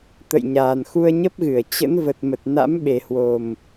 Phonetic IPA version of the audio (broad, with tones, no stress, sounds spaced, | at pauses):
t̪ ə̰˧˨ j ɲ aː˨˩ n x u˧ ə̯ ɲ ə˦˥ p̚ ɣ ɨ˧˩ ə̯ t͡ɕ ə̰˧˥ n v ə˨˩ t̚ m ə˨˩ t̚ n a̰˧˥ m ɓ e˨˩ h w o˨˩ m